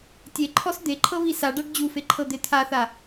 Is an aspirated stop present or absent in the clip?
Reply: present